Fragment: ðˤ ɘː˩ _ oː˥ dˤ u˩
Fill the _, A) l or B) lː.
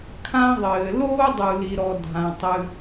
A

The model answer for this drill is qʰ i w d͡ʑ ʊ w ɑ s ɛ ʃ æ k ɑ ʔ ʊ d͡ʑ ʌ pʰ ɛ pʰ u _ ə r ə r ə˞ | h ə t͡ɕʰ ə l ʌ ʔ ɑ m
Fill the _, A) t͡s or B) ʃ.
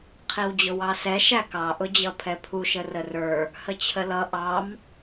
B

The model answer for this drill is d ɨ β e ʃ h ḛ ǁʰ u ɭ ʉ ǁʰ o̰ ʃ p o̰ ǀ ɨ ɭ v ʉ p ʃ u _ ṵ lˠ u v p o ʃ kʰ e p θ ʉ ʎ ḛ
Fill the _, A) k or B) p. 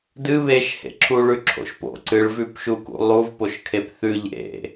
A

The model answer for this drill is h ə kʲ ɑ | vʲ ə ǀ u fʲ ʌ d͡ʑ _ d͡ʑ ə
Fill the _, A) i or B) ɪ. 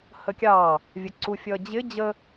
B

